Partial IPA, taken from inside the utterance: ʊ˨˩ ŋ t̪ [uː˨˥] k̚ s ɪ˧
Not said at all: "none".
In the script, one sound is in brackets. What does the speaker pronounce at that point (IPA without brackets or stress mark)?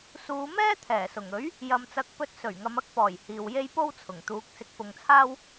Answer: uː˨˥